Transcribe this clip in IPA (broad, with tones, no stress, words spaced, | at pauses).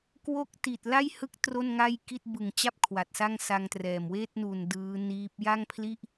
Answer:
kwo˥˩k̚ti˨˩t̚ la˥˩jhɯ˦˥k̚ tro˥˩nŋa˥˩jki˥˩t̚ bɯ˨˩ŋt͡ɕa˥˩p̚ kʰwa˨˩t̚sa˥˩ŋsa˧ŋtrɛː˨˩m weː˥˩t̚nu˨˩n dɯː˦˥niː˦˥p̚ ja˥˩ŋpʰli˥˩ʔ